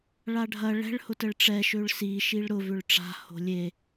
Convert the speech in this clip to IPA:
ɭ a ɖʱ ɐ ɭ ɛ̤ ɭ h ʊ t ə ɭ ʈ͡ʂ ɛ ʃ ø ɭ s i ʃ i ɭ ɾ ʊ v ʏ ɭ ʈ͡ʂ a̤ h o̤ lʲ e

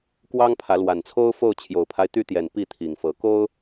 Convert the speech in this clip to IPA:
k w ɑ˦ ŋ pʰ ä˨˦ l w a˨˩ n t͡sʰ o˦ ʊ̯ f o˥˨ ʊ̯ t͡ɕʰ j o˨˩ ʊ̯ pʰ a˦ ɪ̯ t̪ y˦ t̪ j ɛ˨˩ n p i˥˨ t̪ʰ i˨˩ ŋ f ɤ˨˦ k o˦ ʊ̯

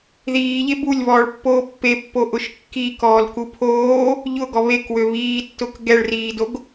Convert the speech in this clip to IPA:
ð iː ʎ e b u lʲ β ɔː ɭ pː oː pː e pː o ʔ ʊ ʃ kː i k ɔː l k u pʰ oː | ʎ ʊ ɡ ɔ β e k w ø β iː tː ʊ k ɡ ɛ ɭ r iː d o ɡ

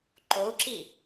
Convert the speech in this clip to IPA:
ǃ o u̯ ǁ i

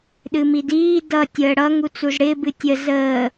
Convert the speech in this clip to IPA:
ɗ ɨ m i d iː d ʌ tʲ əː ɽ ʌ ŋ u t͡s u z ɽ ɪː b ɨ tʲ ə z əː

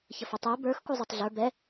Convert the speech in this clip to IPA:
ç ɐ f ə tˤ ə˞ b ə˞ x k u zˤ ɐ tˤ ɮ ə˞ b ɛ

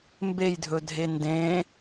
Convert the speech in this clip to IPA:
m b e j dʱ ɵ dʱ e n d ẽ

